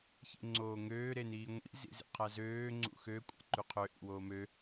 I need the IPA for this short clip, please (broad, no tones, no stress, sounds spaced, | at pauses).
ç ḛ ŋ͡ǀ oː ŋ øː ɾ e n iː ŋʷ ḭ z ḭ z ḛ qʰ æ z øː ŋ͡ǀ ṵ x ø kʷʼ ɑ̰ ǃ y qʰ ø ʔ ḭ w oː m ø